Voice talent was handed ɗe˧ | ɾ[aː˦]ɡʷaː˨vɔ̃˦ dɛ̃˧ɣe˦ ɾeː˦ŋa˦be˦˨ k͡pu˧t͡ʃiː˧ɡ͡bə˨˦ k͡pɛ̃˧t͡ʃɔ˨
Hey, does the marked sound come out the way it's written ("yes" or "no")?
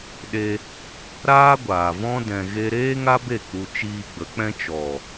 yes